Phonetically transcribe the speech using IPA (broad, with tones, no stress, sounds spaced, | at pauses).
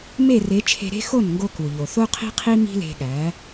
m e˥˩ r e˩˥ t͡ʃʰ e̤˧ ɾ e̤˥ x o˥˩ n ŋ ɡ o˧ k u˩ ʎ o˩ θ o˥ qʰ i̤˥ qʰ i˥ m i̤˥ l e̤˧ ɠ æ˩˥